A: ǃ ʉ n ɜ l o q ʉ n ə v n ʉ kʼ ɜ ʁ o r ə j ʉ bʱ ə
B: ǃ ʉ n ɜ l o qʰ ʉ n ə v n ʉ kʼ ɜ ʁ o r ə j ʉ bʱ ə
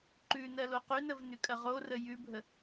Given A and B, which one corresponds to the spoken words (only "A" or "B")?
A